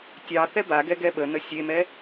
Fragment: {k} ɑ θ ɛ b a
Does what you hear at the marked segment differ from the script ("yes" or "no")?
yes